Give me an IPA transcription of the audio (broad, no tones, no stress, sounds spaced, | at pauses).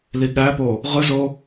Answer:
l i ɠ æ p o | ʁ ɯ z o